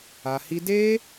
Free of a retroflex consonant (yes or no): yes